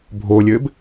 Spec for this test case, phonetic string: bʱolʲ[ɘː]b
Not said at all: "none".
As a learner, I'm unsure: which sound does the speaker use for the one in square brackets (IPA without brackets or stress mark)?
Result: ɘː